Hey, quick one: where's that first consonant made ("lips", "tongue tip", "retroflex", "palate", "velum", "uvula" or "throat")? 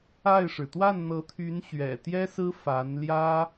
retroflex